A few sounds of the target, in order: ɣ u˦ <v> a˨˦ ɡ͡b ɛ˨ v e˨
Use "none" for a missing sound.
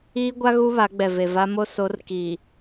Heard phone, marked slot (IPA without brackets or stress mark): β